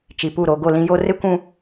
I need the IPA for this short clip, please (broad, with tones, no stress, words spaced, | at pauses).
t͡ʃi˨pu˦˨ɾo˨ ɡo˦˨ lĩ˦jo˦ rɪ˦kʷũ˦